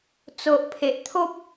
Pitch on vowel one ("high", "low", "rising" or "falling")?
low